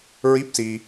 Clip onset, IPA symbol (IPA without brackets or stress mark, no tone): ɹ